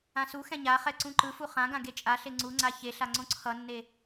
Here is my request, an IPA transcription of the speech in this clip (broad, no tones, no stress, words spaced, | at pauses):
ãsuxɛ̃ ɲaχɛ ǀũǃɯfu χãɡã ɡet͡ʃʼaɬe ŋ͡ǀuŋ͡ǀa çeɬa ŋ͡ǀõǀʰʌnːe